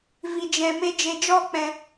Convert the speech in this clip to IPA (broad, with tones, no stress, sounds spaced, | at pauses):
v i˨ d͡ʒ ɛ̃˨ m e˧ d͡ʒ e˨ d͡ʒ ɔ˦˨ k͡p ɛ̃˨